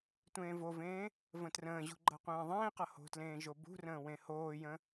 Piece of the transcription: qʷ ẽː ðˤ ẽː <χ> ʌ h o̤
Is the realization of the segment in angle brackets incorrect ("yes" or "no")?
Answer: yes